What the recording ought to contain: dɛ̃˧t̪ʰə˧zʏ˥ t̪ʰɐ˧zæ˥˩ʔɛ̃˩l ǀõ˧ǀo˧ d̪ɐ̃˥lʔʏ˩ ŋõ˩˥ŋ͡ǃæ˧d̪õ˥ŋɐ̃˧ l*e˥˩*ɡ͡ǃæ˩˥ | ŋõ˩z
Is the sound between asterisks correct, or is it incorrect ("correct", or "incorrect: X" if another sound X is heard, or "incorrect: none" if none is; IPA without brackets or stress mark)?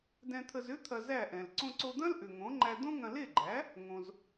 correct